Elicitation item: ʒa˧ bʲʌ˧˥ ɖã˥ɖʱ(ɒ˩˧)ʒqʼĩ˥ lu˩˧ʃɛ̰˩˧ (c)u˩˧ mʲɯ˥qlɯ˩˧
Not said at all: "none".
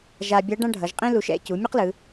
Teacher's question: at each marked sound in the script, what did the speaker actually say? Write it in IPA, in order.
ʌ˩˧, c

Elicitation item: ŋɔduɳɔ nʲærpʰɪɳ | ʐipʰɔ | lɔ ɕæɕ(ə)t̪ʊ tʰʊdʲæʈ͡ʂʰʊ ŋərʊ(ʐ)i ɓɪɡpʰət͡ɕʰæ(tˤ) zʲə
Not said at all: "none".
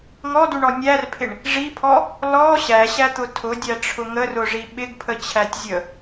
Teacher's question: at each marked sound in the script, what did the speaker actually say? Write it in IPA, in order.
æ, ʐ, tʲ

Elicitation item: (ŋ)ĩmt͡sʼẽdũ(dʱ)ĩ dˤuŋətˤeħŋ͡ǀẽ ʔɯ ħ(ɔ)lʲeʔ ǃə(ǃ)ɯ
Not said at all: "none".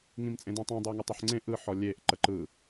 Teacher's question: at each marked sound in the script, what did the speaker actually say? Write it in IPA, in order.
ŋ, tˤ, ɔ, ǃ

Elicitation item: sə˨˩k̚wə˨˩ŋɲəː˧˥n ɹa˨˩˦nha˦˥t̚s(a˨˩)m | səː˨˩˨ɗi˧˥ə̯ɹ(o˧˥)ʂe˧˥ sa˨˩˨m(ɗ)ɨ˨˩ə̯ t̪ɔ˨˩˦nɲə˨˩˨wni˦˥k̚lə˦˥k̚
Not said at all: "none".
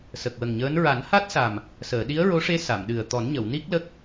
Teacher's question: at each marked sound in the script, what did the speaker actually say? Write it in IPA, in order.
a˨˩, o˧˥, ɗ

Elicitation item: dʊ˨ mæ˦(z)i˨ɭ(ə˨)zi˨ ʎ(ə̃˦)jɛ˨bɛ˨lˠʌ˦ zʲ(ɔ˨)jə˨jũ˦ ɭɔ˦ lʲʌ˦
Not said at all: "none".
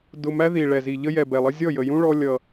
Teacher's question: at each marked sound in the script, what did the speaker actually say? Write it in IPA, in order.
ð, ɛ˨, ə˦, ɔ˦˨

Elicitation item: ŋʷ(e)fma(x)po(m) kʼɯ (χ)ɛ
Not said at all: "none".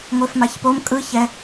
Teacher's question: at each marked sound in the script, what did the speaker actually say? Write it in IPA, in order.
e, ç, m, ç

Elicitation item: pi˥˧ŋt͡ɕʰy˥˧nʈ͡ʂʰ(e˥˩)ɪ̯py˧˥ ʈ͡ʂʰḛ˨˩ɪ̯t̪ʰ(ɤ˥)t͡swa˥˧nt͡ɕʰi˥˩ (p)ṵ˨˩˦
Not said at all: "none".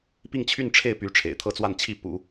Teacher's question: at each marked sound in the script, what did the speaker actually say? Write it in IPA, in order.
e˥˩, ɤ˥, p

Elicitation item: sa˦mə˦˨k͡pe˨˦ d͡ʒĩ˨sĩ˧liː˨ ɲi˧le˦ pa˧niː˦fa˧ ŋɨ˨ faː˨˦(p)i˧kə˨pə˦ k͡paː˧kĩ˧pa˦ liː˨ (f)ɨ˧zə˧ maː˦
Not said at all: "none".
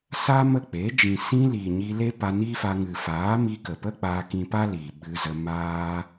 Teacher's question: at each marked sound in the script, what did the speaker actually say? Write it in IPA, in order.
m, ɓ

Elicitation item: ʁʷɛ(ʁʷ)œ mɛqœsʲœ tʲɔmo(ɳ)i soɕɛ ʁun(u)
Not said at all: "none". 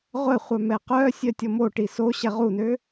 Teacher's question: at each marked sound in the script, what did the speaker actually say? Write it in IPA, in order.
χʷ, ʈ, ø

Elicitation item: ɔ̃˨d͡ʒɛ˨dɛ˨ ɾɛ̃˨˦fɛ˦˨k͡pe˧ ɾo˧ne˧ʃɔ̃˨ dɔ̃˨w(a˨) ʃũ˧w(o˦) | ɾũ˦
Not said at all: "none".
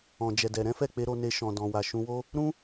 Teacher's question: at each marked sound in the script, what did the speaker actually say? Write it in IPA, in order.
a˨, o˦

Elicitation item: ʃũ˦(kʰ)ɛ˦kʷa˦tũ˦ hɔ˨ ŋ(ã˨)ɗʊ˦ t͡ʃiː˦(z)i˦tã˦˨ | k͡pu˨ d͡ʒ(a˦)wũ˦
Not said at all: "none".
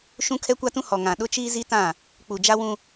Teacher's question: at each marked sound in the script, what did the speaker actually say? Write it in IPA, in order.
kʰ, ã˨, z, a˦

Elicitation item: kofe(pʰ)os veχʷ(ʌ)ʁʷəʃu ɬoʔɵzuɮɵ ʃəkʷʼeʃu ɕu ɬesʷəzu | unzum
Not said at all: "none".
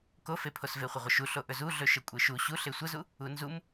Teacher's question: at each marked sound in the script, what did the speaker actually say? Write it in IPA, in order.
pʰ, ə

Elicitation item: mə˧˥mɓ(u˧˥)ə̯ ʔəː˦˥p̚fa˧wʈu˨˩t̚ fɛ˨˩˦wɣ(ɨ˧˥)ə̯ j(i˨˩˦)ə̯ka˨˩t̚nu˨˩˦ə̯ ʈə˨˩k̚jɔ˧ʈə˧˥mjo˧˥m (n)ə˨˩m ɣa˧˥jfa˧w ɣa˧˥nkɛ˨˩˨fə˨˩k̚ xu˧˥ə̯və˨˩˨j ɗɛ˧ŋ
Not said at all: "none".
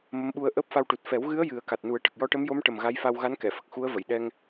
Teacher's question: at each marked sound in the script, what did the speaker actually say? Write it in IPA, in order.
u˧, ɨ˧˥, ɨ˨˩˦, ʈ

